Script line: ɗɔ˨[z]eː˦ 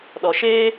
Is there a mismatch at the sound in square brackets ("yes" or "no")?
yes